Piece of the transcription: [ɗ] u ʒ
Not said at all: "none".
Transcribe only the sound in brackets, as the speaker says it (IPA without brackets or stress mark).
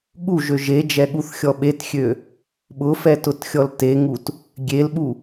ɠ